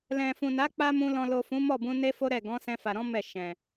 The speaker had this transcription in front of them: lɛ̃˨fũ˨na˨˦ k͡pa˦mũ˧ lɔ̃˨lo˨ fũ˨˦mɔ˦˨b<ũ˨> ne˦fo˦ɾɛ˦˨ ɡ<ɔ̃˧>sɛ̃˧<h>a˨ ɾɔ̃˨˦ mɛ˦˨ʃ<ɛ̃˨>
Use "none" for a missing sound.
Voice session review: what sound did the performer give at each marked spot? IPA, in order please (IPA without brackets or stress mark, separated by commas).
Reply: ũ˧, ɔ̃˨˦, f, ɛ̃˨